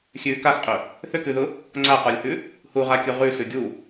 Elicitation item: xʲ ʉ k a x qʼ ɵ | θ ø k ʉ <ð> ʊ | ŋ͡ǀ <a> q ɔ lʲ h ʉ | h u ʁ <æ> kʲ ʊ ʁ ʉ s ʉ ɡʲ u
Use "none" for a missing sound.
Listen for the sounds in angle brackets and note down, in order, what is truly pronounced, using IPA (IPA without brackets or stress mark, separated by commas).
ð, a, a